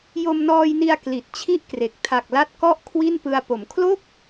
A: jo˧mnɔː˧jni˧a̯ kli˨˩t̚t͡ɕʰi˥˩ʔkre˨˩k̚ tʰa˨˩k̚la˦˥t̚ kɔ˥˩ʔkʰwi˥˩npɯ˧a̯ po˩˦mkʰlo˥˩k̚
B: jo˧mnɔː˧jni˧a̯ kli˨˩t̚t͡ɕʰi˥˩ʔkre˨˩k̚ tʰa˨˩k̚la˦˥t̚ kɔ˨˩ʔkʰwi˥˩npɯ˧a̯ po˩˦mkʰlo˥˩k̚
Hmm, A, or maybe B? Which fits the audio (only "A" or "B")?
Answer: A